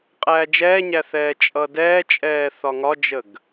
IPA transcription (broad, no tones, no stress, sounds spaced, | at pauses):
qʼ æː d͡ʒ ɛː ɲ æ θ ɛː t͡ʃʼ ʌ d ɛː t͡ʃʼ ɛː θ ɒ ŋ ɒ d͡ʒ ə ɡ